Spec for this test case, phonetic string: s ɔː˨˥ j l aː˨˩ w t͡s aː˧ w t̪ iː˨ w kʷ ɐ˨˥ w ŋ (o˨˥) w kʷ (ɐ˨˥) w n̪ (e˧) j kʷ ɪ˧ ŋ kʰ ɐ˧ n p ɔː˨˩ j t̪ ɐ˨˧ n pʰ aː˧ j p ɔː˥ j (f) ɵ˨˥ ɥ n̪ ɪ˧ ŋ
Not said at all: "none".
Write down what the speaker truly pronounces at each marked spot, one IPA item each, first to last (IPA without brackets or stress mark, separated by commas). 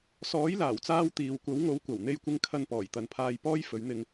o˨˥, ɐ˨˩, e˧, f